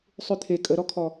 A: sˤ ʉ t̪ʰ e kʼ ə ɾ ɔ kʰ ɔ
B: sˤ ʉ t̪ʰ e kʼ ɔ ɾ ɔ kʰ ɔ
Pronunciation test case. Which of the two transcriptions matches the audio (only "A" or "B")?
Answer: A